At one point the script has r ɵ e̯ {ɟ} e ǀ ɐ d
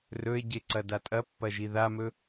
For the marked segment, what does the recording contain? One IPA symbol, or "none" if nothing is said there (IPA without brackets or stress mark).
ɟ